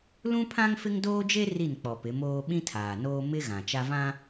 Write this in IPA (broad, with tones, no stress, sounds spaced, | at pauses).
l ũ˦ pʰ ã˦ ŋ f ɪ˦ ŋ d oː˦ d͡ʒ e˦ r i˦˨ n k͡p ɔ˨ p ɪ˨˦ m oː˦ ɓ ĩ˦ tʰ aː˨ n oː˦ m ɪ˦ ɣ ã˨ t͡ʃ a˦ v ã˦